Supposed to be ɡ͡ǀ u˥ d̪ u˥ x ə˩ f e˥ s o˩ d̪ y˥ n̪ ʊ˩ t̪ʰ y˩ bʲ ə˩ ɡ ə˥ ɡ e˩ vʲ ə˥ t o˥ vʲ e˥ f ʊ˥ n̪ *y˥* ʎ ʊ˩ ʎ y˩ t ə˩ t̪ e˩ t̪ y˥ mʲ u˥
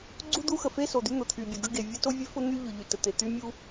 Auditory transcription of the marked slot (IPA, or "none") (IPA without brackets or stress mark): y˥